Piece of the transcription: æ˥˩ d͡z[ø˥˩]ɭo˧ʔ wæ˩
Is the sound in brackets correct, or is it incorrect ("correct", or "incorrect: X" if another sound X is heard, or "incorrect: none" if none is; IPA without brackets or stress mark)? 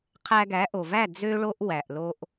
incorrect: ø˧